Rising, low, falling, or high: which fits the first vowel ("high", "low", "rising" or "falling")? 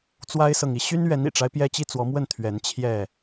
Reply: high